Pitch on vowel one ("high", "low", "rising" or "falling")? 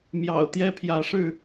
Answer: low